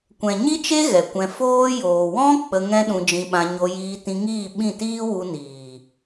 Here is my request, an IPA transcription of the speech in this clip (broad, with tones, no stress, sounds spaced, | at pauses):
kʷ ɛ̃˨ ɲ i˦ t͡ʃ e˦ ɣ ɛ˨ kʷ ɛ̃˧ f oː˦ j oː˨ w ɔ̃˦ k͡p ə˧ ŋ ɛ̃˦ ɗ ũ˧ d͡ʒ ĩ˧ ɓ ã˧ ɲ o˧ j iː˧ t ĩ˧ ŋ iː˦˨ ɓ ĩ˦˨ t iː˦ w u˧ n iː˨